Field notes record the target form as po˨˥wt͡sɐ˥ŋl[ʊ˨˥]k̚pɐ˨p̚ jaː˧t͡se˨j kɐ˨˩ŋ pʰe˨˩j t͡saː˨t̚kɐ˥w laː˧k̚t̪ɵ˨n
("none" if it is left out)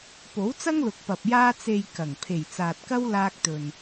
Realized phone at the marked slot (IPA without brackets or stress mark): ʊ˨